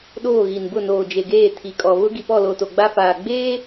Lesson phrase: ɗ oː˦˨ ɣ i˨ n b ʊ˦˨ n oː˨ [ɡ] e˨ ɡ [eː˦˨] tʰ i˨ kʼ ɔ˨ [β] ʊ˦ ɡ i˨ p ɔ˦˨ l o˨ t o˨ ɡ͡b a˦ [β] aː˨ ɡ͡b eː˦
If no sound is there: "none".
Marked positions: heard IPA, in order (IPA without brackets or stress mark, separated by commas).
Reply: d͡ʒ, eː˦˨, β, f